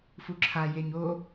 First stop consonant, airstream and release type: click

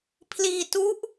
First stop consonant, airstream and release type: aspirated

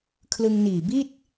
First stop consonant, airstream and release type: aspirated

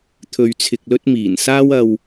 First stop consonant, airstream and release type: aspirated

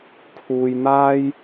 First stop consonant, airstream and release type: aspirated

